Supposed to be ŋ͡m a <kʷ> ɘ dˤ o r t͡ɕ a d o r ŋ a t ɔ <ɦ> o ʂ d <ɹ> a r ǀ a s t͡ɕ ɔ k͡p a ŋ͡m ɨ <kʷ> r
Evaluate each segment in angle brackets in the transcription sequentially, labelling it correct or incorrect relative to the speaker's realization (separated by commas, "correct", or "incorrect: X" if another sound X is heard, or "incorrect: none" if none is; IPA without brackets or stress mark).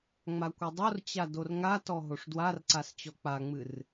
correct, correct, incorrect: w, incorrect: none